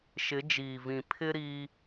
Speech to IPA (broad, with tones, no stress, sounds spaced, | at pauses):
ʃ ɪ˨˦ d͡ʒ iː˨ v ĩ˨ pʰ ɪ˦ ɾ iː˦